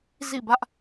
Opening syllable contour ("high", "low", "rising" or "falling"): falling